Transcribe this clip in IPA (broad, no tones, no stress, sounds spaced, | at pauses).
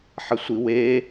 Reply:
ħ ɐ sʷ i w e